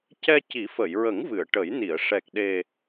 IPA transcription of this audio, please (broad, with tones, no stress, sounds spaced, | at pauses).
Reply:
c ɛ˧ c i˨˩˦ f ə˨˩˨ j ɹ ə˨˩˦ ŋ v ɨ˨˩˨ ə̯ ʈ ə˨˩˦ j n i˨˩˨ ə̯ ʂ ɛ˨˩ k̚ ɗ e˨˩